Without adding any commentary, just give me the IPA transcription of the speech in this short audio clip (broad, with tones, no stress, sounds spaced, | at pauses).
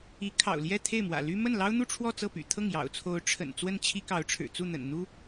i˧˥ kʰ ɑ̰˨˩ ʊ̯ l j ɛ˥˧ t̪ʰ e˥˩ ɪ̯ m w ä̰˨˩ l y˥ m ə˥˩ n l ɑ˥ ʊ̯ n̪ u˥˧ ʈ͡ʂʰ w ɔ˥˧ t͡s ɤ˥˩ p y̰˨˩ t̪ʰ ɤ˥˩ ŋ j ɑ̰˨˩ ʊ̯ t͡sʰ o˧˥ ʊ̯ ʈ͡ʂʰ ə̰˨˩ n t͡s w ə˥˩ n t͡ɕʰ i˥ k ɑ˧˥ ʊ̯ ʈ͡ʂʰ ɻ̩˨˩ t͡s u˥˩ n̪ ə̰˨˩ n n̪ u˥